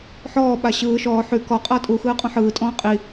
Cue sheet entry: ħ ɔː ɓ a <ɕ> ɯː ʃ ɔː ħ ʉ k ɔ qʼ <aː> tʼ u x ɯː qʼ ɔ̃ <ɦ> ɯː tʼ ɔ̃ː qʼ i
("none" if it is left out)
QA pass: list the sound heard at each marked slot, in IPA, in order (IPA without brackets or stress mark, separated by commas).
ɕ, ʌː, ħ